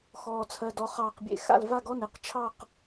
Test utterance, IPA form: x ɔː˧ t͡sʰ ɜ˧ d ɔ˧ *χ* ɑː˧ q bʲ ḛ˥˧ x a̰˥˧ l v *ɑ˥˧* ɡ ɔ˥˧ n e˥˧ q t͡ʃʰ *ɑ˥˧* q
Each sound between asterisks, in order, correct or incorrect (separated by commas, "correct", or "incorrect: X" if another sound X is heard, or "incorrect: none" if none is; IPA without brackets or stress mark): correct, incorrect: a˥˧, correct